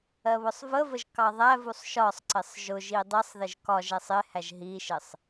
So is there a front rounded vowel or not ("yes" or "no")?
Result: no